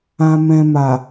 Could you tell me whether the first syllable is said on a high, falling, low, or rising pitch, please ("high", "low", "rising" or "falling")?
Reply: low